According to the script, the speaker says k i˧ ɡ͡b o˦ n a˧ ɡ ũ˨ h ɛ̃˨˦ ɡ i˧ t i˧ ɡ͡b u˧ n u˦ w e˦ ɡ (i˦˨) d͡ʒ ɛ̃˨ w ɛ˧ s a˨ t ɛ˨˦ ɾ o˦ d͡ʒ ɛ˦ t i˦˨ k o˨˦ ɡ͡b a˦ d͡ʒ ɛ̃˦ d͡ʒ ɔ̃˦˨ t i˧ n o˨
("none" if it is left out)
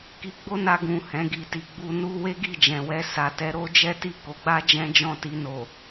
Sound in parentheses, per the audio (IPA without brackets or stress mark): i˦˨